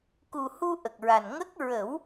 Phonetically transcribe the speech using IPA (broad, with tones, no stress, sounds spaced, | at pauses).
k u˨˩ h u˧ ʔ ə˨˩ k̚ ɹ a˨˩ n ŋ ə˦˥ k̚ ɹ ə˨˩˦ w